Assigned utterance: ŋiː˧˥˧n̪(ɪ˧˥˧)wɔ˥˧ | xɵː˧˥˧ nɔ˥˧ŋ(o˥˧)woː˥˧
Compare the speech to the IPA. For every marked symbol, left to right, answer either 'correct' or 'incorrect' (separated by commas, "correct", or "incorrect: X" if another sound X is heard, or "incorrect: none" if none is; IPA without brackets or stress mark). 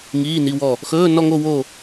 incorrect: i˧˥˧, correct